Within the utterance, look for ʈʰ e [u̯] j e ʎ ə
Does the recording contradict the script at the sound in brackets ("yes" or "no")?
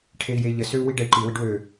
yes